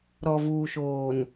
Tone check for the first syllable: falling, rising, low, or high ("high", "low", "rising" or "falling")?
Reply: low